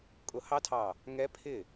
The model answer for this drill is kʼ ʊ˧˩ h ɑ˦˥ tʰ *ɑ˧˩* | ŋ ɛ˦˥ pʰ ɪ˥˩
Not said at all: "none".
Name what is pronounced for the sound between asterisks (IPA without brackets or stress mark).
ɑ˧˩